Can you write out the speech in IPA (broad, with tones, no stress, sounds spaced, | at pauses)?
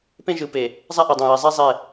p ẽ˦ ʒ ɯ˨˦ p e˨ | zˤ a˦ ʔ e˨ dˤ ã˨ j ɛ˨ zˤ ɛ˦ zˤ ɛ˦˨